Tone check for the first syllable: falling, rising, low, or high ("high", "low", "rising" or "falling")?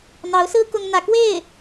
rising